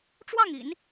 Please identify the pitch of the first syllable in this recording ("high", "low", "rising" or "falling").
falling